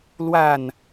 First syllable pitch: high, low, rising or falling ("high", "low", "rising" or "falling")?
falling